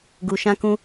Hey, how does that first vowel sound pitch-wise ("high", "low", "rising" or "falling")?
low